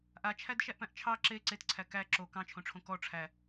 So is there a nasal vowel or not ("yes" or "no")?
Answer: yes